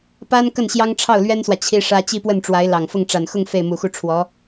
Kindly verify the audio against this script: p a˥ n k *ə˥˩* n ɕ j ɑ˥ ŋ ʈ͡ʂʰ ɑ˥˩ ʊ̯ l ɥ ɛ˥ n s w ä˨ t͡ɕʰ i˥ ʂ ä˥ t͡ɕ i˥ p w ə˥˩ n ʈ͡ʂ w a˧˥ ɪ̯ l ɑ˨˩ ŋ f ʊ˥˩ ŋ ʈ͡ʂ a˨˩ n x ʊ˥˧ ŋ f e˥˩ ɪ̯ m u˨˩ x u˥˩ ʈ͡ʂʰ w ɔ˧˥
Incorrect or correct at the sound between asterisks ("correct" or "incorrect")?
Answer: correct